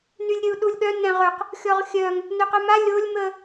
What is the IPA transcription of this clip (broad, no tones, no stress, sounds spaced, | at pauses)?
n y lʲ ɾʲ ə u̯ ɗ u lʲ ɠ œ n ɛ̃ ʁ ø q | xʲ ɔ ʁ xʲ œ ŋ | n ø q œ m a lʲ o lʲ m ə